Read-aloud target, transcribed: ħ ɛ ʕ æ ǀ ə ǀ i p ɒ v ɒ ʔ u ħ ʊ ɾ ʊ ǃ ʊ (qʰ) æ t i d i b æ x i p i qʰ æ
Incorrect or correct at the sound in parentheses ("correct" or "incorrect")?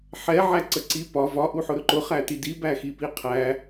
incorrect